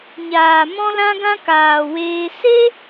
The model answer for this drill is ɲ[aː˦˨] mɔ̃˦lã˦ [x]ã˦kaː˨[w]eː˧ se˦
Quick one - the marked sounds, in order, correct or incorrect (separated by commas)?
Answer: incorrect, incorrect, correct